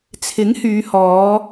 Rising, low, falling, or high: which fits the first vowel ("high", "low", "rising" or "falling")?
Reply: rising